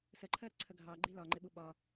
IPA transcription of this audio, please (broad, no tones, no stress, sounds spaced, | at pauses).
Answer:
s ə ǃʰ ɜ ɾ ə ǀʰ ə ɡʱ ɑ ɡ͡ǃ i l ɒ ŋ͡ǃ ɪ ɓ u ɓ ɒ